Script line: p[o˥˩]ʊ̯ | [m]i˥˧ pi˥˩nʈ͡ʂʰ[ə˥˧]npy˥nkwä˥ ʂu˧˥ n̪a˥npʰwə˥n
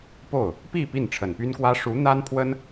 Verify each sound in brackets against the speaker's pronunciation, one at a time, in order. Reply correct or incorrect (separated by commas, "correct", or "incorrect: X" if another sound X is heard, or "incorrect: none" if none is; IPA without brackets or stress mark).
correct, incorrect: p, incorrect: ə˨˩